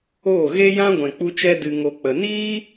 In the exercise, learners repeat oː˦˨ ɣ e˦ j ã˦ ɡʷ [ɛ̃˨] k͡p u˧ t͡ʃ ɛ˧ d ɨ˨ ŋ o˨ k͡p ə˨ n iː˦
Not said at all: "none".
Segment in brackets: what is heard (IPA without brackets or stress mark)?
ɛ̃˨